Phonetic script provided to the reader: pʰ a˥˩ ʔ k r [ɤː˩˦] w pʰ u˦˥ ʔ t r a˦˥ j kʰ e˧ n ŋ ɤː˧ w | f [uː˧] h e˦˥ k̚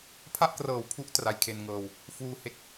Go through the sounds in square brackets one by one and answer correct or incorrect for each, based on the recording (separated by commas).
incorrect, correct